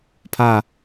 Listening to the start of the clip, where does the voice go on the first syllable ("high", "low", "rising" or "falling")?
falling